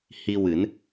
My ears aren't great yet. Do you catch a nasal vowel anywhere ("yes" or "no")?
no